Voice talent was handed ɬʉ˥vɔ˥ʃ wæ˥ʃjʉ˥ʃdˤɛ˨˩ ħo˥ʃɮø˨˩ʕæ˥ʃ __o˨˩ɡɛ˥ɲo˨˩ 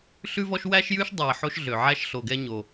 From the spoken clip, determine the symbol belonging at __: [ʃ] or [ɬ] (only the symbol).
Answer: ɬ